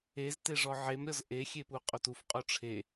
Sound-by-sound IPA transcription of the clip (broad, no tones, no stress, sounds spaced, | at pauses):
e z t e ʐ ɔ ʕ e m ɾʲ ɔ z ʔ e xʲ e p u qʼ o t u f qʼ o ʈ͡ʂʰ e